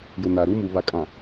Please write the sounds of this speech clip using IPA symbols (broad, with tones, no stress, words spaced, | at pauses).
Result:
jʊ˨na˨ɾu˦mu˨ βa˨kʼã˨